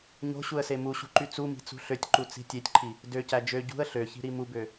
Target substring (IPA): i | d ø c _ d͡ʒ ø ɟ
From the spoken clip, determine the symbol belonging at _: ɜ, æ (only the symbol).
æ